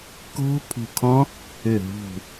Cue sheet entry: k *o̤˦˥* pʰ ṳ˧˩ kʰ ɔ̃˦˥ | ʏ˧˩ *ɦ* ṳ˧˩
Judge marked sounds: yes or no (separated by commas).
yes, yes